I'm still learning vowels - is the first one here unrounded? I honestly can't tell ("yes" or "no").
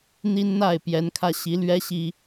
yes